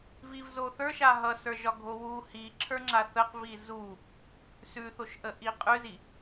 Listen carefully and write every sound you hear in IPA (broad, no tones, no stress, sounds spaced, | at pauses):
v i v z o θ ə˞ ʃ a ɦ ʌ s ə˞ ʒ ɒ ɡʱ o w u h i ǁʰ ə˞ ŋ͡ǁ a θ ə q v i z u | s ʉ θ o ʃ ʔ ə ʔ i qʼ ʉ z i